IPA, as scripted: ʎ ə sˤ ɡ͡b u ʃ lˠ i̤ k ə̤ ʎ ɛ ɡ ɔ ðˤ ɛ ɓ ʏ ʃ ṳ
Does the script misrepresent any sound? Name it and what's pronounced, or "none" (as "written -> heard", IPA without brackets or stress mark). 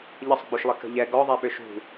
i̤ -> i